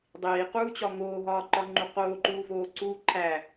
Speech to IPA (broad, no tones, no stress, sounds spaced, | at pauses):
dˤ iː q uː t͡ɕ ɒ ŋ oː ɦ ɒː ǃ ɒ ŋ͡ǃ u q oː ǃ uː v oː ǀ uː ǃʰ æ